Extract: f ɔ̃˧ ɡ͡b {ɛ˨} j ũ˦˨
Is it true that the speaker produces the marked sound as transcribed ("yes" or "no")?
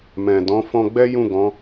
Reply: no